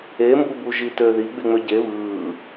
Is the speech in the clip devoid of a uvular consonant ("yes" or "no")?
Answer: yes